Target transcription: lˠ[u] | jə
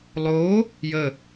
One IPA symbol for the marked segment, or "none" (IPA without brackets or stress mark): o